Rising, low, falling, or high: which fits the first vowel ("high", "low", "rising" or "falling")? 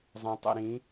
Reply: low